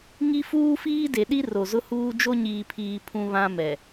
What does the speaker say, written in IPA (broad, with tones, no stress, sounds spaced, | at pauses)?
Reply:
ŋ i˦ f uː˦ f iː˦ d e˨ ɗ i˦ r o˨ z ʊ˦ h uː˦ d͡ʒ o˦ ɲ iː˨ pʰ iː˨ pʰ ũ˦ β ã˦ m ɛ˨